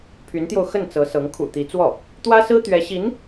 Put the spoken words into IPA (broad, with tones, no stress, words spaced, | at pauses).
pʰy˧˥nt̪jo˧ʊ̯xə˥˩n t͡sɤ˧˥sɤ˧˥ŋ kʰṵ˨˩ t̪i˧˥t͡swɔ˥˩ | t̪wä˥sɹ̩˥ t̪ɥɛ˧˥ɕi˧˥n